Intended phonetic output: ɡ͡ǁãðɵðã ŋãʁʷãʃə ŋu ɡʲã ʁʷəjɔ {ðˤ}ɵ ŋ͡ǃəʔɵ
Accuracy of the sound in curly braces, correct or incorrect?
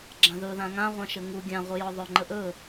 correct